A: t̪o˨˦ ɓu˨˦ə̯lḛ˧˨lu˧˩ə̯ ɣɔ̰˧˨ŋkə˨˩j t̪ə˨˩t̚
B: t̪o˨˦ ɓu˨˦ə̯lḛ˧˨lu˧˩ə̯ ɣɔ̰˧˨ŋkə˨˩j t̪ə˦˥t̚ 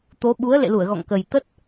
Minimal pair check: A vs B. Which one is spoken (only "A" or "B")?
B